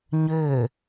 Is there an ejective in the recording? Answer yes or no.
no